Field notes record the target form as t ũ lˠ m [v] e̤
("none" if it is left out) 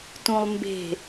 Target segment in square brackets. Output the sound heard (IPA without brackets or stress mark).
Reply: b